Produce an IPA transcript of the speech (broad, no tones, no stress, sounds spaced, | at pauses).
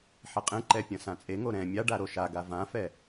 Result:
ħ e qʼ ẽ ǃ ɛ pʲ ɐ̃ s ã t͡sʼ e ŋ o ɾ ɛ̃ mʲ a ɖ a ɾ o ʃ a ɡ a v ã f ɛ